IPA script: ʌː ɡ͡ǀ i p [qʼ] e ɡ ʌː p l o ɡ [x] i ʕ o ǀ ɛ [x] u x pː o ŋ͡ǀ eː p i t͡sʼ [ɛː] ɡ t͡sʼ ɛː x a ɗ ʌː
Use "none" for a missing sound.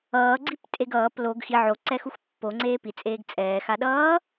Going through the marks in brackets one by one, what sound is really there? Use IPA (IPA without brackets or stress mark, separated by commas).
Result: tʼ, x, x, eː